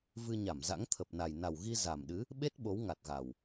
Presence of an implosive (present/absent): present